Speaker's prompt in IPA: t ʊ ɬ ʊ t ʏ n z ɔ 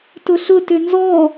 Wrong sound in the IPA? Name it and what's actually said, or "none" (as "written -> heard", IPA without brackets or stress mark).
none